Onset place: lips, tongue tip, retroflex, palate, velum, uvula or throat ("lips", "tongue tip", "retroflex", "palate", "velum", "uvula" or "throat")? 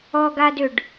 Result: velum